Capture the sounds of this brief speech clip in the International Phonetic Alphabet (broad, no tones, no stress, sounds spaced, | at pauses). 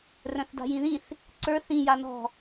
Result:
r œ̃ θ d a̤ j ĩ ð ĩ θ | ǀ ə˞ θ ĩ j a n ɔ̤